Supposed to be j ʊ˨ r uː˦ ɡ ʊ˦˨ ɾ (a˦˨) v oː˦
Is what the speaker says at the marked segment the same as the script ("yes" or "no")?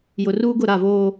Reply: yes